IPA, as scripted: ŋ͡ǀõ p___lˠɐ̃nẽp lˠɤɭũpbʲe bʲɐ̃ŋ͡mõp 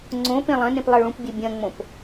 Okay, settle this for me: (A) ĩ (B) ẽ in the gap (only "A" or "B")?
B